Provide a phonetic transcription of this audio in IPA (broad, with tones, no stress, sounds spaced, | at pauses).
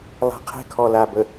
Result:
lˠ a̤˨ qʰ ɛ̤˦ kʰ ɔ˨ l a˨ b ə˨